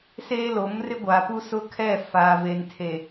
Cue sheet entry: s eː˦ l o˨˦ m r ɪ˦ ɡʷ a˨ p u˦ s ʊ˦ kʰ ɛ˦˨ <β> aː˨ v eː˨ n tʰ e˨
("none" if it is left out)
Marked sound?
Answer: f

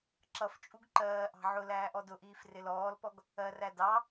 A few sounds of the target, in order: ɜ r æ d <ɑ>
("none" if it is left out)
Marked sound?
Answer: ɑ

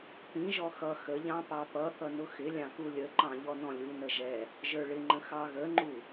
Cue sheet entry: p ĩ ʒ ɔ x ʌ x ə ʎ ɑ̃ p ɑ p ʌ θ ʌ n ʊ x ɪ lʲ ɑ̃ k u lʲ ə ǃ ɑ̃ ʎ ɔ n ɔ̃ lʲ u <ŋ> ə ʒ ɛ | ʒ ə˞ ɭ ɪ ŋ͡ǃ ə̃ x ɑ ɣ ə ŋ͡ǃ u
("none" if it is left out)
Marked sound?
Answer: n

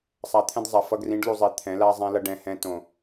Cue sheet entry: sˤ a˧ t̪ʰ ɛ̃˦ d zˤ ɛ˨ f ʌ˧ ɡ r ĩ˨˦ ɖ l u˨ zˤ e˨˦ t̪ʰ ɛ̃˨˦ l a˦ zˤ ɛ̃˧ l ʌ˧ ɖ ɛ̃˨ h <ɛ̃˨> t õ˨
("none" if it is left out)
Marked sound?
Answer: ɛ̃˧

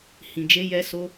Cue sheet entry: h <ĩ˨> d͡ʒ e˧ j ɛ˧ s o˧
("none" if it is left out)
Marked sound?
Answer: ĩ˨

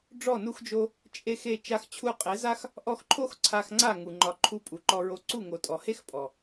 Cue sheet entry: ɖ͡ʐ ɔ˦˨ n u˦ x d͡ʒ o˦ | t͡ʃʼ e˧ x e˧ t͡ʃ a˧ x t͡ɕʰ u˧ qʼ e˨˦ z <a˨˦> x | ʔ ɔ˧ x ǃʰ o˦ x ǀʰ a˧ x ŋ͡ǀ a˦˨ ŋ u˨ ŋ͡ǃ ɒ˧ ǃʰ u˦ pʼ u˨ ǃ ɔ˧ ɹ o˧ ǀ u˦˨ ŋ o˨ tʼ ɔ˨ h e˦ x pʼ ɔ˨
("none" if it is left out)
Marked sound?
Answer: a˦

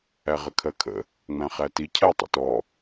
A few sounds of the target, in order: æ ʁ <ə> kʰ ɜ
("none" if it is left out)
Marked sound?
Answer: ə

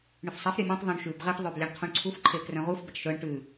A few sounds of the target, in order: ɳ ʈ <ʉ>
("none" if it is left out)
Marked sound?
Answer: ʉ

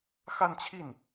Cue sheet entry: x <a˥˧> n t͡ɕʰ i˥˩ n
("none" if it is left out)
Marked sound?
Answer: a˥˧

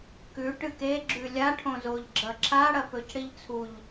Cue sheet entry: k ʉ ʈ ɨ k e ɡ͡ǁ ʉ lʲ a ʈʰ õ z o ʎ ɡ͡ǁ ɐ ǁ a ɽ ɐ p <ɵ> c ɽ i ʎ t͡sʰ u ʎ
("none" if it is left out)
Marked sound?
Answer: ɵ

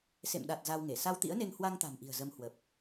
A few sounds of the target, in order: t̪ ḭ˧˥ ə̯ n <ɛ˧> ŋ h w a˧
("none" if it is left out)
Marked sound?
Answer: e˧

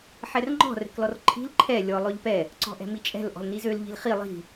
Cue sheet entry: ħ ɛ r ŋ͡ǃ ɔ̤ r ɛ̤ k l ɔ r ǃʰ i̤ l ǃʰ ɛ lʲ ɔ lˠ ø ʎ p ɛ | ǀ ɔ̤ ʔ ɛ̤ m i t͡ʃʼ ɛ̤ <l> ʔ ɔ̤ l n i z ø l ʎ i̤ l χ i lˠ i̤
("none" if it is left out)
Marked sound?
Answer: l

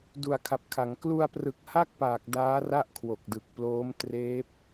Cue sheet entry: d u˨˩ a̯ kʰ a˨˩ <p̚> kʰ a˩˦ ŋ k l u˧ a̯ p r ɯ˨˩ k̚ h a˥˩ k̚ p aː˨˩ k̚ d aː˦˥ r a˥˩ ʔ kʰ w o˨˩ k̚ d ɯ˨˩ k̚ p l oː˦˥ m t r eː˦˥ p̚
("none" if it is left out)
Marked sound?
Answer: p̚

